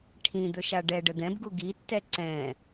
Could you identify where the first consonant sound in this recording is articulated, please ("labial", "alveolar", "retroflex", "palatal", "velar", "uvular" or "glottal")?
retroflex